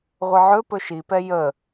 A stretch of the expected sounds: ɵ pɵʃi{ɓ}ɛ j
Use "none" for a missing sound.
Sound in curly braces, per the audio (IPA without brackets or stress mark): p